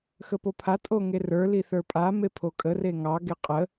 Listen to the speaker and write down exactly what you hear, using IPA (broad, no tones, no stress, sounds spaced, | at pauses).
x ə p o pʰ a tʼ o ŋ e r ə˞ l i θ ə˞ pʼ a m e pʰ o kʼ ə r e ŋ ɑ ɡ e qʼ ə